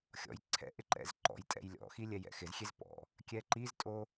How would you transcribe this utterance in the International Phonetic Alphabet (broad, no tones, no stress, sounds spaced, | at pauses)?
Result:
xʲ ɔ̰ j ǀʰ ɛ̰ ʔ ɪ ǃ ɛ̰ z ǃ ɔ̰ j tʼ ɛ̰ j lʲ ɔ̰ x i lʲ ɛ j ɛ̰ x ɪ z xʲ e z p ɔ̰ | kʲ ɛ ǃ i z tʼ o